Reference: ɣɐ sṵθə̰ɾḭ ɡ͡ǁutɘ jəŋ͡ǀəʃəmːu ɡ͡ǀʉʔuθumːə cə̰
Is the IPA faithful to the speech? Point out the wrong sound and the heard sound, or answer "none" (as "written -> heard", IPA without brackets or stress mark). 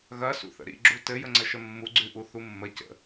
none